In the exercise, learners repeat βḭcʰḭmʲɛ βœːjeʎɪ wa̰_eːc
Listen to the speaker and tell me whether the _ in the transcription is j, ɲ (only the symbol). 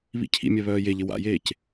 j